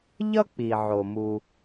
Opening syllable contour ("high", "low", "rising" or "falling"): high